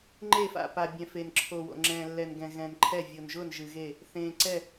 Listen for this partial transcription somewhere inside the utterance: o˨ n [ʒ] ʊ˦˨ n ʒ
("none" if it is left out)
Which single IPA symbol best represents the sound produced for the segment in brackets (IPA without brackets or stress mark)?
ʒ